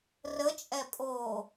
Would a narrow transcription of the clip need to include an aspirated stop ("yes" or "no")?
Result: no